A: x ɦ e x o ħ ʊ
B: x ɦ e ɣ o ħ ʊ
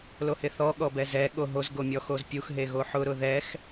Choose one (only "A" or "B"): B